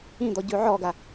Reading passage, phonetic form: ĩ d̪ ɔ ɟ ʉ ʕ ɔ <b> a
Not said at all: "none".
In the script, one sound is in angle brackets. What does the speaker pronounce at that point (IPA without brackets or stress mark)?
ɡ